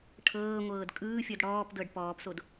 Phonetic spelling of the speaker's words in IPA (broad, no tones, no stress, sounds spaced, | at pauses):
ʈʰ ɤː ŋʷ ɤː d kʼ ɯː fʲ ɔ d ɽ ɔː p d ɤ ɖ p ɔː p s o d